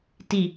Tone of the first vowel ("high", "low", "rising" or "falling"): low